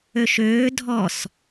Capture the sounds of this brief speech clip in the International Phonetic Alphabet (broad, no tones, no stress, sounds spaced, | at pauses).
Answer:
ø ʃ øː dʱ ɔ s